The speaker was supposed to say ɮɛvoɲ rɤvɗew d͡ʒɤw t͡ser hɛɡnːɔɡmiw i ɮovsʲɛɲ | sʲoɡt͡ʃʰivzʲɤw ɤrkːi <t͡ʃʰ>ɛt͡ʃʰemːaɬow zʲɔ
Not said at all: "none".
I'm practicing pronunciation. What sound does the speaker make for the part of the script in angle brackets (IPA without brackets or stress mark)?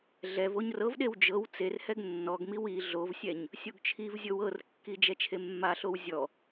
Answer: d͡ʒ